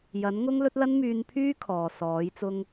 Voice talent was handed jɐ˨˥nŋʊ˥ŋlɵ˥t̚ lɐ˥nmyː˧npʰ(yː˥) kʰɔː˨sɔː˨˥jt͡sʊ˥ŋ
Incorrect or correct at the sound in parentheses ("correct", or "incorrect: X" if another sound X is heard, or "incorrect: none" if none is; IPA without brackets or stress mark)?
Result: correct